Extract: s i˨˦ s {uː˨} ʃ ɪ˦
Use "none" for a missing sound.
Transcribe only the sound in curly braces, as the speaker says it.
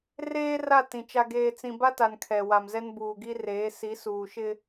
uː˨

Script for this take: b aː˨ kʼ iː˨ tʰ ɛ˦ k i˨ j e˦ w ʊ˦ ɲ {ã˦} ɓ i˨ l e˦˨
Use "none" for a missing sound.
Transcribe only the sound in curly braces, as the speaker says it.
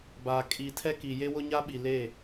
a˦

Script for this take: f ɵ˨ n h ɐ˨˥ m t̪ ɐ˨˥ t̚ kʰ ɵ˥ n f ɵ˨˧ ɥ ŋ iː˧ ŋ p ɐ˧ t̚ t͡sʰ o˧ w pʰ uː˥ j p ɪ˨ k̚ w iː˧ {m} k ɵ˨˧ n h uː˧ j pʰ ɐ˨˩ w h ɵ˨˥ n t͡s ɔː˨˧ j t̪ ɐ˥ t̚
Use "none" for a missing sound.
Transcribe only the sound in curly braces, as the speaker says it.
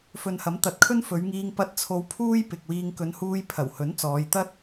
ŋ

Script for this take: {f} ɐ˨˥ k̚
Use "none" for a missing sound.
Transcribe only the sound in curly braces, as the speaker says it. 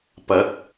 p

